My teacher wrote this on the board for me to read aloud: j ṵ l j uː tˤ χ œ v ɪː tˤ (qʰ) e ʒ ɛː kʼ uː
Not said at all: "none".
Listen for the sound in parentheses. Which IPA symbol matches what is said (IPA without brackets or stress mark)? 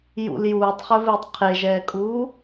qʰ